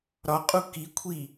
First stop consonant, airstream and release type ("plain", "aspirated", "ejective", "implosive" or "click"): ejective